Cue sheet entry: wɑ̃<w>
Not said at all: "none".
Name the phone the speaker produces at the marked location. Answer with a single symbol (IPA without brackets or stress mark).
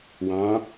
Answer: none